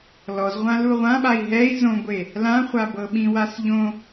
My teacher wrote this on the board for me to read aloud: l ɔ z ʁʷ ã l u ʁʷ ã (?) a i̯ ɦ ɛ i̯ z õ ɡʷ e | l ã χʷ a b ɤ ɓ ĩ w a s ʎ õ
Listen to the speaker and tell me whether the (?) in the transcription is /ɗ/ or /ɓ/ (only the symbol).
ɓ